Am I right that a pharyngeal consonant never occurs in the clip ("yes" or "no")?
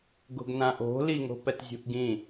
yes